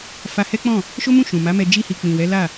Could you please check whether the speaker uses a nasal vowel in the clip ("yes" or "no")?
yes